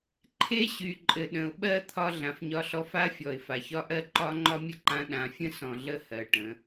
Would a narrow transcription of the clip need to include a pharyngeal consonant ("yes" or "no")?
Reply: no